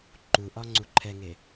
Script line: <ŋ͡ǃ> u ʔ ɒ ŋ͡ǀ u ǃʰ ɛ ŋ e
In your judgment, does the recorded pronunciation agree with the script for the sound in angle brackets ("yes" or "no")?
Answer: no